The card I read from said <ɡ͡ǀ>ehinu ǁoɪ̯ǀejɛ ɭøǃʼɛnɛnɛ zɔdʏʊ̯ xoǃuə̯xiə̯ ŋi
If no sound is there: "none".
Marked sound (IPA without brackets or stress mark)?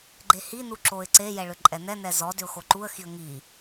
ɡ͡ǃ